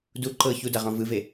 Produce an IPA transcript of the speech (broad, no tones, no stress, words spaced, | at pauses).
du ǃɤ çudaʁɔ̃ vɯve